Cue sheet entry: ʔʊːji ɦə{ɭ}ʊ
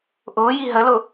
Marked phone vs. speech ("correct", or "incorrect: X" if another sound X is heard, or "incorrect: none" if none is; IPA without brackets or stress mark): incorrect: l